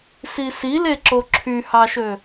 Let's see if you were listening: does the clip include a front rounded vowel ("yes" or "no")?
yes